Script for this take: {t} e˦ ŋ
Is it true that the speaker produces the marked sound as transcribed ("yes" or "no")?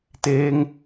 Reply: yes